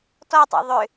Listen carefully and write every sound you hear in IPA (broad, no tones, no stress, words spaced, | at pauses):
tɔtˤɛ̰ ðˤʏ